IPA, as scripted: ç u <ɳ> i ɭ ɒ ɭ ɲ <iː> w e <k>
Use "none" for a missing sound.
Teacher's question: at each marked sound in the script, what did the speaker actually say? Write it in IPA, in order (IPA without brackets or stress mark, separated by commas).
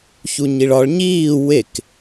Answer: ɲ, iː, k